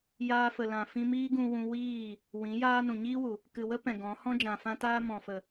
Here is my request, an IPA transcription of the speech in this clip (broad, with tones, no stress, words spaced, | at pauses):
jaː˧fə˨lã˨ fĩ˧miː˦ɡũ˧wũ˧ wiː˦˨ | wĩ˨˦ jaː˦nũ˨ ɲiː˦wu˨ | kɨ˨wə˦ pɛ̃˨ɡɔ̃˨˦ hɔ̃˦d͡ʒã˨fã˦taː˦ mɔ̃˨fə˨